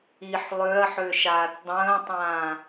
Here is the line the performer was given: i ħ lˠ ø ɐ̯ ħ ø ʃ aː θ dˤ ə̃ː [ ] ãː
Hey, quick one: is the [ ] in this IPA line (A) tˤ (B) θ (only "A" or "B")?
A